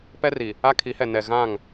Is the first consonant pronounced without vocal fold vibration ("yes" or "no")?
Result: yes